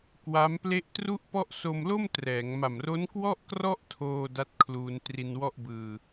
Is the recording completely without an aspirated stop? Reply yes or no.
no